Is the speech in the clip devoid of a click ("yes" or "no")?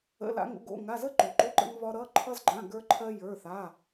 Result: no